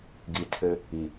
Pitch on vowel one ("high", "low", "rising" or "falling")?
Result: low